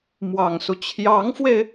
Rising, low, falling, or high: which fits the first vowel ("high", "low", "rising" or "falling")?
low